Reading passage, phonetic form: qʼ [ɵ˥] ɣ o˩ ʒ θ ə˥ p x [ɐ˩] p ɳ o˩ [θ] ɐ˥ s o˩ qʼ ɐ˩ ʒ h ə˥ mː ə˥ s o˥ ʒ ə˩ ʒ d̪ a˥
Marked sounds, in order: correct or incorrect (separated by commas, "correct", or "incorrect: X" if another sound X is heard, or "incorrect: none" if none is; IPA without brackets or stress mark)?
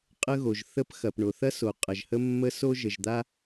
incorrect: ə˥, correct, correct